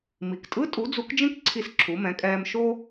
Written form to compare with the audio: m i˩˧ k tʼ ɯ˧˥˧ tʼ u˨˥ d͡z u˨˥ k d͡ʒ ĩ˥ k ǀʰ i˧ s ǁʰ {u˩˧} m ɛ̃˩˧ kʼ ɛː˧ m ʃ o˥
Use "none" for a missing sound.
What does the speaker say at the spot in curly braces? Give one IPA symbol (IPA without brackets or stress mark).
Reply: u˩˧